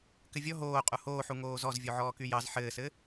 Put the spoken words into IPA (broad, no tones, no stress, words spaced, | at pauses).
kɘvʲɔ ɦoː qʼuhoːħu ŋoːzɔz vʲoʕɔːkyjɑz ħɘːsɘ